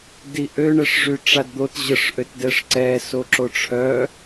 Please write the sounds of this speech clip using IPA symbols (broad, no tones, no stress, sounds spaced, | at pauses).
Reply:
d i ʔ ø ɳ ɛ ʂ ʐ y ʈ͡ʂ a d d̪ o t ʑ ə ʂ ʔ ø t d ɛ ʂ ǀ ɛ s o ǁ o ʈ͡ʂʰ œ